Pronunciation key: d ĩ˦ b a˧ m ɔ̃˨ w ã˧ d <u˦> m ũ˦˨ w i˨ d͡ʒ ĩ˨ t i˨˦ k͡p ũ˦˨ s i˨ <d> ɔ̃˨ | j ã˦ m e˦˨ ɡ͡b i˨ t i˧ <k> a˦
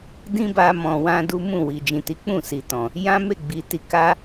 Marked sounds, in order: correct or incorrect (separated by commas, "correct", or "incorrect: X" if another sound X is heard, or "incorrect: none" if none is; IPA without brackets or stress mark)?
correct, incorrect: t, correct